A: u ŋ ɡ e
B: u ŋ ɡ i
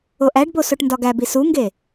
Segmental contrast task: A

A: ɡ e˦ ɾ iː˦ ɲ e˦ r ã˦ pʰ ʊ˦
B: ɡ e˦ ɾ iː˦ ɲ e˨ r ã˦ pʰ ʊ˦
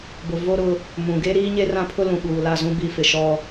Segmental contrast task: A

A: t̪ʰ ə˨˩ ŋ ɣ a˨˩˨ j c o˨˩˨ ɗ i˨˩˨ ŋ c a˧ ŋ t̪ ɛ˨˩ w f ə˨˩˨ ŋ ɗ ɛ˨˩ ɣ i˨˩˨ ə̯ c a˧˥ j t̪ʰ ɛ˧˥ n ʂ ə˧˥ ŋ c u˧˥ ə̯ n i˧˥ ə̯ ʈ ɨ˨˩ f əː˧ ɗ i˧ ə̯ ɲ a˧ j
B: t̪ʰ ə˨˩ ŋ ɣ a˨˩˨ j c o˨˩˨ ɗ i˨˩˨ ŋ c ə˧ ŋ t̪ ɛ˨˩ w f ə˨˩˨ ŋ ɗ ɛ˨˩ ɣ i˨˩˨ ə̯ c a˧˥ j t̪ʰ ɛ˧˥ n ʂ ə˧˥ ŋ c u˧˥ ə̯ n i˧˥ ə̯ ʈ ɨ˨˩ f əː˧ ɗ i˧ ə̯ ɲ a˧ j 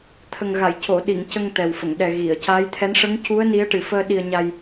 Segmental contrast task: B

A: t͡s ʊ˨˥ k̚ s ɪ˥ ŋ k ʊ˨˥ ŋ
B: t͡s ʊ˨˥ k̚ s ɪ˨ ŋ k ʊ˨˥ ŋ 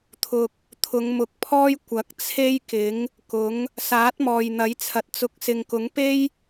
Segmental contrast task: B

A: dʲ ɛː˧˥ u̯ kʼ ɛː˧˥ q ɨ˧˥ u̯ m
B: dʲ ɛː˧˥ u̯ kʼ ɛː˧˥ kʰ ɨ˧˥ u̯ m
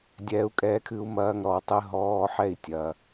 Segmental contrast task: B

